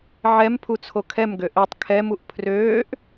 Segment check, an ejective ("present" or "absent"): absent